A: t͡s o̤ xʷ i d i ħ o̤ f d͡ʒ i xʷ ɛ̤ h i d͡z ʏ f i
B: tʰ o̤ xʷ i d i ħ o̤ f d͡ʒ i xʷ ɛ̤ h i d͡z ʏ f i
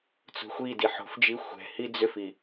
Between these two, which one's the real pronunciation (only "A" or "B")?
A